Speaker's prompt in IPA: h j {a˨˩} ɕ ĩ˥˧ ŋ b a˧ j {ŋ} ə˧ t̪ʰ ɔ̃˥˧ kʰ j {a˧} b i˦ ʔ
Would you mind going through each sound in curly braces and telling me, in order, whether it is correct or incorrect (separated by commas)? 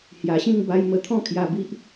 correct, incorrect, correct